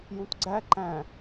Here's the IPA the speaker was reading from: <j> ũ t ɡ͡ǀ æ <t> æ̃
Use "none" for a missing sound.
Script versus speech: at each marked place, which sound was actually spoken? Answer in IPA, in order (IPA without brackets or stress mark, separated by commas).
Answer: j, ǃ